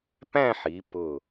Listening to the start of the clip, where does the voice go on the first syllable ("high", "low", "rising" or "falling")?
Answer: falling